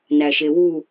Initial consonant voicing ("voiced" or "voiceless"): voiced